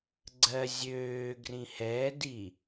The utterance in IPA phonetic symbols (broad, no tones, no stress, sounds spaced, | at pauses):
ɡ͡ǀ ɜ zʲ øː ɡ r ĩ h ɛː d i